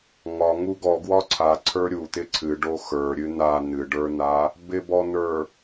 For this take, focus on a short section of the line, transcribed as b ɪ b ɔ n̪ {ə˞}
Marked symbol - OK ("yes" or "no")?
yes